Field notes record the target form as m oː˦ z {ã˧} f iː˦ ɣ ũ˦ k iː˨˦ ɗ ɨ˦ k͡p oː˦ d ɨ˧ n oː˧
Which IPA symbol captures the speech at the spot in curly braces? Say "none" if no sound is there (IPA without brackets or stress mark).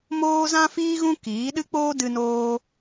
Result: ã˦